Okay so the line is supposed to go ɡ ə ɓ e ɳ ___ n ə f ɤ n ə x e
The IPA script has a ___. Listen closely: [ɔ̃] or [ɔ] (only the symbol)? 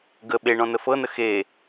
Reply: ɔ̃